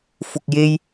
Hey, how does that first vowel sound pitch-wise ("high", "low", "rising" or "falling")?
low